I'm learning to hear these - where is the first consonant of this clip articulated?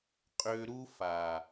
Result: uvula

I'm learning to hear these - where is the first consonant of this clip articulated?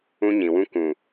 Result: palate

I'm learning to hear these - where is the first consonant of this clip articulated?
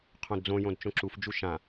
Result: uvula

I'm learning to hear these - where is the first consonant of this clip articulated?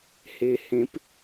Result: throat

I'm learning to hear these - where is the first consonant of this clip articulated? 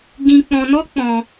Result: velum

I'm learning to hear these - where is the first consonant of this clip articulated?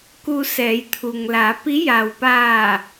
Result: velum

